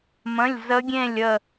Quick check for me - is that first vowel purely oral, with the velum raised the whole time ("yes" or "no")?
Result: no